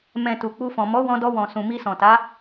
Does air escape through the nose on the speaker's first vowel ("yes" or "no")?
yes